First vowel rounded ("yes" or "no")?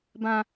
no